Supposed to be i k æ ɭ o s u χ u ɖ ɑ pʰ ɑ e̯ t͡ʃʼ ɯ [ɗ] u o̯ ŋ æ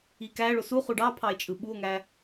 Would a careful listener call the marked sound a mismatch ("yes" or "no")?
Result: yes